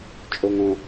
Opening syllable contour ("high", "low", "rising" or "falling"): low